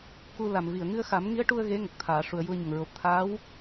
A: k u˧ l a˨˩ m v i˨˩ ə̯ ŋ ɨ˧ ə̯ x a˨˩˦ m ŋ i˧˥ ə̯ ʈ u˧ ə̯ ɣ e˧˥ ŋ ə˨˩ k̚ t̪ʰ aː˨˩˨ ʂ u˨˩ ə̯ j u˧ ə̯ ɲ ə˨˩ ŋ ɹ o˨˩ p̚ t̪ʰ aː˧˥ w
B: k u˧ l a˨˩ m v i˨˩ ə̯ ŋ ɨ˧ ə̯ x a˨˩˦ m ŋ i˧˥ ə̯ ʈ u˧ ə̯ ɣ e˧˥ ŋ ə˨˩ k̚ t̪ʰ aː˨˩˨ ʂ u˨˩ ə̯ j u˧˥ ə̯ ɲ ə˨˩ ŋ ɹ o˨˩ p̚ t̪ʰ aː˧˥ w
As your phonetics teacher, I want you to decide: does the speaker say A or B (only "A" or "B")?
A